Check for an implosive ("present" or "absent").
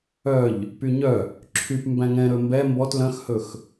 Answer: absent